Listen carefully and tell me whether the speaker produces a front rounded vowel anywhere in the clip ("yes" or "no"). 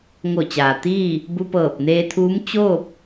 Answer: no